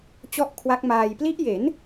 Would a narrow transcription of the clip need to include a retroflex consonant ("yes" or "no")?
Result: no